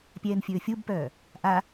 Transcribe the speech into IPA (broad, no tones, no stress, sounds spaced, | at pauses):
pʲ ɛː n fʲ ɵː fʲ u b p œː | ʔ a